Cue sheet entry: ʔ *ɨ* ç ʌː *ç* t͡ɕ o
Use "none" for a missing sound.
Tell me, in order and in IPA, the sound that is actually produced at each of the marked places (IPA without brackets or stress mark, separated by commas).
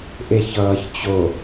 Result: e, ç